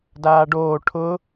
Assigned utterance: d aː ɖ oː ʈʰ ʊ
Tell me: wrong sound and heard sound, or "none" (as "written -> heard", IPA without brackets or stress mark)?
none